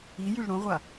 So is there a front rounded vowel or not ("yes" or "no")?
yes